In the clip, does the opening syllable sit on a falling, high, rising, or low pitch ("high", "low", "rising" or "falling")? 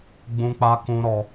high